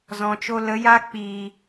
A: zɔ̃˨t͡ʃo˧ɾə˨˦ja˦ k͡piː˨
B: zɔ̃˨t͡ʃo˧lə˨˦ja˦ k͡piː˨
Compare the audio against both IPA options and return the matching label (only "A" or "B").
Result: B